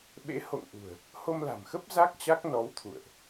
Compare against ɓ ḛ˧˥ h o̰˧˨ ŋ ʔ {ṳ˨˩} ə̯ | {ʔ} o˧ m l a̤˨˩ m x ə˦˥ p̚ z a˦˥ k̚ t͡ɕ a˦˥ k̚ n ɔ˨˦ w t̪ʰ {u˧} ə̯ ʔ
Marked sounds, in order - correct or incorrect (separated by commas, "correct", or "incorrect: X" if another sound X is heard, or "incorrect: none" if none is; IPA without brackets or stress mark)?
correct, incorrect: h, incorrect: ṵ˧˨